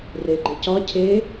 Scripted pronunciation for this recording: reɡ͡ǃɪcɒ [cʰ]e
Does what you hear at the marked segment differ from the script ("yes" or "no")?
no